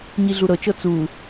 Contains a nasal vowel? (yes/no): no